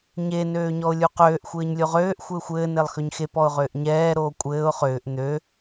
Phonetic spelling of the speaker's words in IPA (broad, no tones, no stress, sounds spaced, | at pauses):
ɲ e n øː ɲ ɔ ʊ̯ lʲ u q øː ʔ xʷ ɘː ɲ lʲ o ʁ øː ʔ xʷ ɘː xʷ ɘː n e lˠ x ø ɲ x e p ɔ ʊ̯ ʁ ʏː ʔ ɲ ɛː ɾ oː kʷʼ ɘː ʊ̯ χ ʏː ʔ n̪ ø